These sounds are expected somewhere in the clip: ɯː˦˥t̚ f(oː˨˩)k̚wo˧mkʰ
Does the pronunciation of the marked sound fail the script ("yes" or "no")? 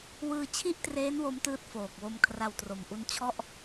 no